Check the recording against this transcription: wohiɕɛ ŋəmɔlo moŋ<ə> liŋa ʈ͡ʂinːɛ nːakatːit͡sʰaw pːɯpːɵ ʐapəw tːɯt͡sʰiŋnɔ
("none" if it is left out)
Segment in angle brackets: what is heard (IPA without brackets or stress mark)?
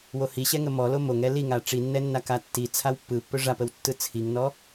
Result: ɛ